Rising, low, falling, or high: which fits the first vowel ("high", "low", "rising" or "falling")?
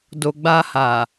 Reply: low